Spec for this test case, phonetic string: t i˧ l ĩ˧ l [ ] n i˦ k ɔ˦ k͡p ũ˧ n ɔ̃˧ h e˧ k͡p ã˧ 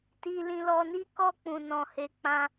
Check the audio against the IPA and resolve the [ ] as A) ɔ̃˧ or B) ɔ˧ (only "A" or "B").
B